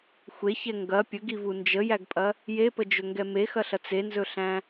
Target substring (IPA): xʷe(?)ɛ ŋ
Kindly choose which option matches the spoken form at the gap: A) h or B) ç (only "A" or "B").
B